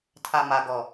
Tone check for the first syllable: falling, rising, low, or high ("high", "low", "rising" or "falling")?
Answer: low